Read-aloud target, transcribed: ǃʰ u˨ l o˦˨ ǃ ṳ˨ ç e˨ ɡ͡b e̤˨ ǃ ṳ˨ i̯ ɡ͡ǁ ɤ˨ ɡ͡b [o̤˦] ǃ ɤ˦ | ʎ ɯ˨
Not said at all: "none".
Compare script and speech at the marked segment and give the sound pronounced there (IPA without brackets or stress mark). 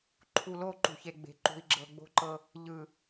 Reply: o̤˦